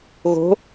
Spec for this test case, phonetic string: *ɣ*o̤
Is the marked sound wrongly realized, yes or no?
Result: no